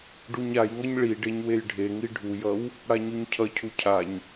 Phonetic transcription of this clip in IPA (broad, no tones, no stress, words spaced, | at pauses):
ɖuɲajŋʌɲ ɭi ɖeɲwejɖʱeŋi ɖʱujʌw | ɽaɲuɲcʰʌcʰu cʰaɲ